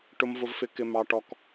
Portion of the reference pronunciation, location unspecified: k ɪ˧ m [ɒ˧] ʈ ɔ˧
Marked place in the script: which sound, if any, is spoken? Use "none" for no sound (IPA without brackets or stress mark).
ɑ˧